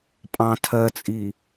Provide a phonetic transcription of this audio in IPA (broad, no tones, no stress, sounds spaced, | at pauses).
pʼ ɑ̃ tʰ ɜ t͡sʼ i